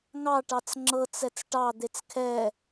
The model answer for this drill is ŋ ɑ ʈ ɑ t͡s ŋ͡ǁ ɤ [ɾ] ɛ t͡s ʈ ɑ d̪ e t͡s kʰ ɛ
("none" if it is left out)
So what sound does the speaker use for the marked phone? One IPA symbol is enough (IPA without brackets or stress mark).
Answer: t͡s